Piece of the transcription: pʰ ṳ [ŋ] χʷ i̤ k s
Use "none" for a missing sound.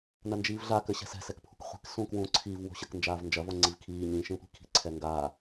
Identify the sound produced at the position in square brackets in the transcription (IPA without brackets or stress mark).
k